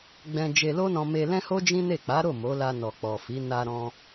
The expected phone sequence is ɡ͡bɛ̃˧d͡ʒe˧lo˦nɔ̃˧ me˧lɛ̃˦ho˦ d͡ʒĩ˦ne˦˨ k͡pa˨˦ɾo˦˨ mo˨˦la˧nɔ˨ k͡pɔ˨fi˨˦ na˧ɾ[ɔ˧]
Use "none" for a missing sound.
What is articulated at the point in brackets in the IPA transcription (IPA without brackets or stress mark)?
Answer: ɔ̃˧